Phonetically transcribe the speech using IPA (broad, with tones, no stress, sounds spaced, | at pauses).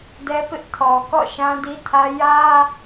d ɛ˦ p ɪ˦ ʔ tʰ ɔ˨ k ɔ̰˦˨ ʃ ã˦ d i˦ tʰ ä˦ j ä˦